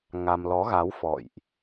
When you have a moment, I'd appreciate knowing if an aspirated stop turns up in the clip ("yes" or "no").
no